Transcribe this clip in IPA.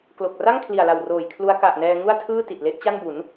klo˨˩k̚ ra˥˩ŋkʰli˨˩a̯la˨˩wroː˨˩j kʰlu˦˥a̯ ka˨˩ʔnɛː˧ ŋu˥˩a̯tʰɯː˥˩ ti˨˩t̚le˦˥ʔ t͡ɕa˥˩nbu˩˦n

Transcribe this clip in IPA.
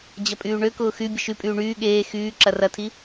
d͡ʑɐpʼyːɳøkʊː xy bʲəʃypʼyː ɳyː ɠeː xyː ǁɐrɐtʰi

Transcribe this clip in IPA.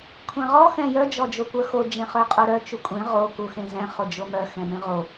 kʷʰɛ̃ʁɔ xɛ̃jœ d͡ʒɔd͡ʒokʷœxo d͡ʒẽχœqʼoɾœ t͡ʃukʷʼẽ ʁo kuxẽzɛ̃ χod͡ʒomœ xɛ̃mẽʁo

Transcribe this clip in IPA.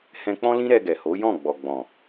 hɛ̃˧k͡pɔ̃˦lĩ˦ ɾɛ˧ɡɛ˨ho˨˦jɔ̃˦˨ ɡ͡bɔ˨ɡ͡bɔ̃˨

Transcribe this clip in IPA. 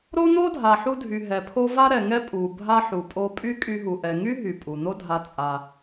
ɾo˦n̪o˦ dʱa˨ħu˧dʱy˨ ɦɛ˨pʰo˧ va˦ɾɛ˨ŋɛ˦ pʼu˨bʱa˧ ħu˨pʼo˧ pʼy˦kʼy˧ɦu˨ ʔɛ˨ŋy˦ ɦy˨pʼu˨n̪o˦ dʱa˧ t͡sʼa˧

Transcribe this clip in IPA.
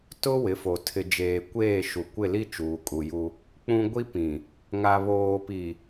tʊ˦ wɪ˨˦fo˨ tʰɪ˨d͡ʒeː˨kʷeː˦˨ʃu˨ kʷɪ˦˨li˦ t͡ʃuː˨kʼu˨ju˦ | k͡pũ˦ ɡʷi˦pĩ˨ | ŋa˨βoː˨pi˨

